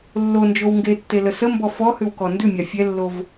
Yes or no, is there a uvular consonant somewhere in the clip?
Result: no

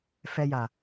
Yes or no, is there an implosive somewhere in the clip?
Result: no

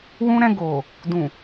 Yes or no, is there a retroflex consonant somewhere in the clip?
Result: no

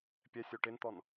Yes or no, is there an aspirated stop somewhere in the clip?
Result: no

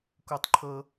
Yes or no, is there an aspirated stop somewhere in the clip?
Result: yes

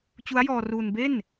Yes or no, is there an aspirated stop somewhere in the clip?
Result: no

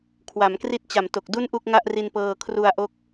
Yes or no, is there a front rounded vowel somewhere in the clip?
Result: no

